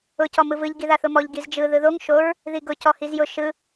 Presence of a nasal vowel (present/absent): absent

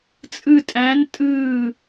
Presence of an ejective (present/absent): present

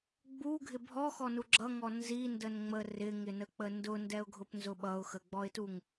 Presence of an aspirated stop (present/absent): absent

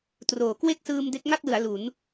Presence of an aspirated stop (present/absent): absent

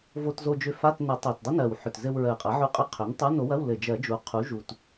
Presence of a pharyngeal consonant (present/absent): present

